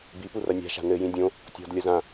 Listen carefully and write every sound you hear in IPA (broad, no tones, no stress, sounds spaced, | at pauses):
b i p u r ɐ nʲ a̤ ʃ a̤ n ɘ j ĩ dʲ õ | tʲ ɔ̤ d lʲ ɐ z ã